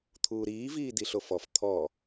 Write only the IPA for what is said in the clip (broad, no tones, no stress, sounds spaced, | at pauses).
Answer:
t̪ʰ uː ɾ iː v iː d i ɬ o f ɔ f t̪ʰ ɔ